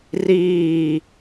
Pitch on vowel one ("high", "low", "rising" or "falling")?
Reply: falling